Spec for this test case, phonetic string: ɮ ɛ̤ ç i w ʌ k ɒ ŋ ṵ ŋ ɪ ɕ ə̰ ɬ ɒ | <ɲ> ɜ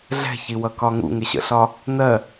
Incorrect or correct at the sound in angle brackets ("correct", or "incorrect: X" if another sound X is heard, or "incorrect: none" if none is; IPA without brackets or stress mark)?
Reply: incorrect: n